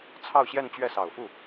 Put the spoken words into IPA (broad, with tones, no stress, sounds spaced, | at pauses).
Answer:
t͡sʰ ɑ˥˧ ʊ̯ ɕ j ɛ˥˧ n t͡ɕ ɥ ɛ˥˩ s ɑ˨˩ ʊ̯ f u˥˩